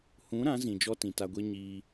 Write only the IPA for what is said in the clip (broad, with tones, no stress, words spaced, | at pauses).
hũ˨˦ ɾã˨˦zĩ˨ d͡ʒɔ˦tĩ˨ta˧ɡʷe˦ ɲiː˧